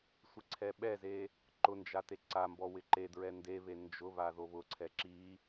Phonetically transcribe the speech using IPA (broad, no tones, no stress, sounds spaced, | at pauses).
sʷ ɪ ǀʰ ɛ ɓ ɛ z e | ǃ ʊ n d͡ʒ a t e ǀ a m b ɔ w ɪ ǃ e d ɹ ɛ n d e β e n d͡ʒ ʊ β a ð o β ʊ ǀʰ ɛ ǁ i